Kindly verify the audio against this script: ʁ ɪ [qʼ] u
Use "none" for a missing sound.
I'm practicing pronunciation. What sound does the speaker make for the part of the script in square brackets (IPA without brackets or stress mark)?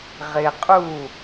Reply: qʼ